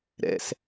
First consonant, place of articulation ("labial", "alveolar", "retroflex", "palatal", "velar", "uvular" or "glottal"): alveolar